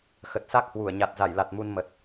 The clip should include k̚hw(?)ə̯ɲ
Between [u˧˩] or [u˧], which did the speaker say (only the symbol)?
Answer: u˧˩